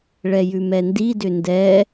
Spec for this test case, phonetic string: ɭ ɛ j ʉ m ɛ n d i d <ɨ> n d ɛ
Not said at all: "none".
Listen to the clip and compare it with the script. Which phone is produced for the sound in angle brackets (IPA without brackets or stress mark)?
ʏ